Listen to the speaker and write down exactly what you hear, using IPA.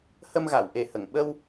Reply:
h ə˧ m ɣ a˨˩˨ w ʔ e˨˩ h ə˨˩˨ ŋ ɓ ə˧ w

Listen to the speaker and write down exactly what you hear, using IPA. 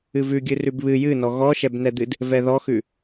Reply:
ɨ v ʉ ɡʲ ɨ r ʉ b β ɨ j ɨ n ɔ ɣ ɔ ʃ ɛ b n ɛ d̪ ɨ d | v ɛ ð ɔ x ʉ

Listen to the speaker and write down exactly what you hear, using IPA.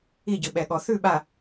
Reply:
i˦˨ ɟ ɯ˨ ɓ ɛ˨ ɠ ɔ˨ θ ʉ˦˨ ɓ a˨

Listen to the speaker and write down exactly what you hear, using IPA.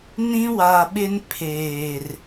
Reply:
n ĩ˦ w a˨ ɓ ɪ˦ n pʰ eː˨ r

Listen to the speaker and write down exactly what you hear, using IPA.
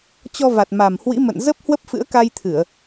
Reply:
t͡ɕ ɔ˧ v a˨˩ t̚ m a˨˩ m h w ḭ˧˥ m ə̰˧˨ n z ə˦˥ p̚ h w ə˦˥ p̚ f ɨ̰˧˥ ə̯ k a˧ j t̪ʰ ɨ˧˩˨ ə̯

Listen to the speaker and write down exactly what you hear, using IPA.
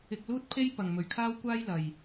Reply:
ɪ˧ k̚ l uː˥ t̚ pʰ e˥ j p ɐ˨ ŋ m ɵ˨ ɥ kʰ aː˥ w kʷ aː˥ j l ɐ˨ j

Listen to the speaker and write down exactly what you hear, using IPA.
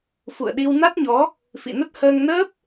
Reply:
f ṵ˧˨ ə̯ ɗ i˧ w n a˦˥ t̚ ɲ ɔ˨˦ | f ḭ˧˨ n ə˦˥ t̚ h əː˧ ŋ n əː˦˥ p̚

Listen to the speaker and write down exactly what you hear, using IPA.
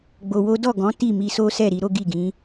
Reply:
ɡ͡b o˧ w o˦ d ɔ˦˨ ɡ ɔ̃˨˦ t i˦˨ m i˧ s o˦ s ɛ˦˨ ɾ i˧ ɾ o˦ ɡ i˦˨ ɡ ĩ˨˦

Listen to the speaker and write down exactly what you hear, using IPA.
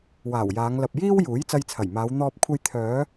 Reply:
w aː˨˩ w j aː˨˧ ŋ l ɐ˨ p̚ j iː˥ w j uː˨˥ j t͡s ɐ˧ j t͡sʰ ɐ˨˩ j m aː˨˧ w n̪ ɔː˧ p̚ kʷʰ ɐ˧ j t̪ʰ œː˨˧

